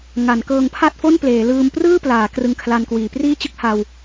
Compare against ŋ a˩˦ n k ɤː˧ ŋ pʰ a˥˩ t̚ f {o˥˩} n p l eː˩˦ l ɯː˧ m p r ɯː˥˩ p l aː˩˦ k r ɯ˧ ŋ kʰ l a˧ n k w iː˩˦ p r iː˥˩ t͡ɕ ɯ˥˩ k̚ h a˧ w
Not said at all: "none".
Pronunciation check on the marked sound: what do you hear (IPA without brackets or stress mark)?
o˥˩